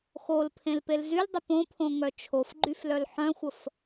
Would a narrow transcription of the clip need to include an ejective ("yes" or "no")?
no